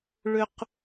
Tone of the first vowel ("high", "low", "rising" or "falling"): low